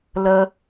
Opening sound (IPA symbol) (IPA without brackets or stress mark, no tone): l